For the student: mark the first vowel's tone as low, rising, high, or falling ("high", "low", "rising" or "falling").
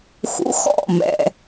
rising